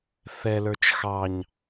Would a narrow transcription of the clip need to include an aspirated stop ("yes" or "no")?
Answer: no